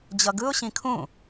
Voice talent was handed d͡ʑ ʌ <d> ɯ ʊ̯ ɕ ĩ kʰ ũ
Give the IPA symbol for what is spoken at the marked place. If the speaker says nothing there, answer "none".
ɡ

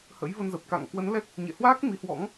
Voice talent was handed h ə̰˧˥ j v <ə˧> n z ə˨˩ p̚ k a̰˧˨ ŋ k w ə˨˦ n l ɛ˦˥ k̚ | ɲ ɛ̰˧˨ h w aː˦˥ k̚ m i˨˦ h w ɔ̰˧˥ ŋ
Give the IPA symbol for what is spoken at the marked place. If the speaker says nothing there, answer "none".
ə˧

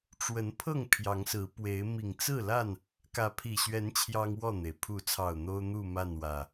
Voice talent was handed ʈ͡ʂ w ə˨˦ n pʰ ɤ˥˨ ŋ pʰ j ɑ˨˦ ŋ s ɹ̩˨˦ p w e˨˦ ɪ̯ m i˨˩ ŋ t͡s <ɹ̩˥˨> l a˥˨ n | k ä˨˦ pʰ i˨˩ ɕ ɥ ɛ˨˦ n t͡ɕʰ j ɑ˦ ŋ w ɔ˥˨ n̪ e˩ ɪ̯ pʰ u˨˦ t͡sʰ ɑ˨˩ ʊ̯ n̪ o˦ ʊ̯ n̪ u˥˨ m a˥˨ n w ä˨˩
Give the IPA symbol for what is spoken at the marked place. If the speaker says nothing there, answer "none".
ɹ̩˥˨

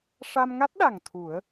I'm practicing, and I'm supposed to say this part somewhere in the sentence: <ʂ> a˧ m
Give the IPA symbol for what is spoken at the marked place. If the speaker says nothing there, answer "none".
ʂ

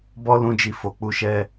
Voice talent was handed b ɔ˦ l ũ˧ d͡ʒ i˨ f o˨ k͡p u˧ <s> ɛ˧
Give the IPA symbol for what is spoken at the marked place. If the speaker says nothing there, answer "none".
ʃ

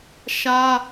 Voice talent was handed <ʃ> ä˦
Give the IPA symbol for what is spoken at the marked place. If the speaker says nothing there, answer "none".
ʃ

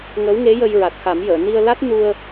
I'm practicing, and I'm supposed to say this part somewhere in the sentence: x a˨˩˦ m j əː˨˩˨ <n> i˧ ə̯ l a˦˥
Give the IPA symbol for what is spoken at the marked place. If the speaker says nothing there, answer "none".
n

